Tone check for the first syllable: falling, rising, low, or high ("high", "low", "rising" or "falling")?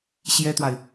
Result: high